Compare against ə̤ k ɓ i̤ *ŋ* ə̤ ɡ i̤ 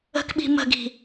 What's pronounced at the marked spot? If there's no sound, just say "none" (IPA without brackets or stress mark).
m